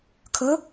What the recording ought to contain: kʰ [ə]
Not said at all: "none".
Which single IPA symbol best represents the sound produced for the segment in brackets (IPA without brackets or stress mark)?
ə